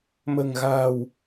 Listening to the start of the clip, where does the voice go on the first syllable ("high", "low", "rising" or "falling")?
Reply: low